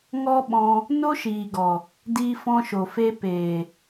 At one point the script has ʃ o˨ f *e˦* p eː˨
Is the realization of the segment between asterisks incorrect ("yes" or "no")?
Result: yes